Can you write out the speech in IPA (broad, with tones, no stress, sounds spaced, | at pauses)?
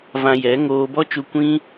v ã˧ j ɛ˨˦ ŋ oː˧ b ɔ˦ t͡ʃ u˧ kʷ ĩ˦